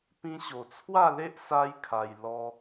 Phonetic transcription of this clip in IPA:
pĩ˧ɕo˨˩t͡sʰwa˥˧le˦ʔ sa˦jkʰa˧j lɔ˧

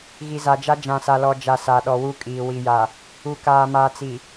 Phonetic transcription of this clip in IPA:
ɣi˨za˨d͡ʒa˦ d͡ʒã˨sa˨lɔ˨ d͡ʒa˨ sa˨ ɗɔ˨wu˦kʼiː˨ wi˨ja˨ | u˨kaː˨maː˨ t͡si˨

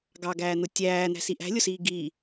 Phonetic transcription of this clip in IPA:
ɡɑɡæːn̪ʊ tʲæːn̪æ̤siʔ æ̤lʲʊsiː ɡi

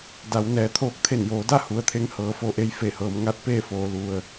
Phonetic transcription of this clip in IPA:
da˩˧wnɛː˩ t̪ʰoː˧k̚t̪ʰe˧˩njoː˩˧da˥˨ hu˩ə̯t̪ʰe˧ŋ hɤː˩˧fo˧ʔe˧j fe˧˩hɤː˩˧m ŋa˧˥t̚peː˥˨foː˩˧ lu˩ə̯

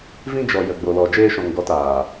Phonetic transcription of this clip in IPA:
vĩ˧d͡ʒɔ˨ jə˨ɡ͡bo˨lɔ˨ d͡ʒeː˧ʃɔ̃˨ŋɡɔ˨˦taː˨

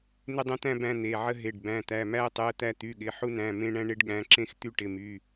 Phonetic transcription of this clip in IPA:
n̪ɪ˦dˤə̃˦t̪æ̃˦ bæ̃˦n̪e˩˧˩ʕə˦ ɦe˩˧˩ɖ bæ̃˩˧˩t̪æ˩˧˩mæ˦ə̯tˤy˩˧˩ə̯ t̪æ˦t̪y˩˧˩ɠɪ˩˧˩ ħu˦næ̃˩˧˩ mẽ˦ɳæ̃˦ ɳe˦ɖɠæ̃˩˧˩ǁẽ˦x t̪y˦ʈɪ˩˧˩my˩˧˩

